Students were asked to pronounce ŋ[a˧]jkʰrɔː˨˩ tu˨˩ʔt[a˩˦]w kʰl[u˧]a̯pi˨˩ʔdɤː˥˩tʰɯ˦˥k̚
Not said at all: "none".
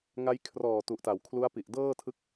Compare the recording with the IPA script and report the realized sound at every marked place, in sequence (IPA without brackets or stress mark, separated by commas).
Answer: a˧, a˩˦, u˦˥